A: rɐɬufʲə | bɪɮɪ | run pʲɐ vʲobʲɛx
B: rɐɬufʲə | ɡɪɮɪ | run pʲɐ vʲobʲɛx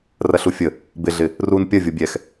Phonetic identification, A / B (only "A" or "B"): A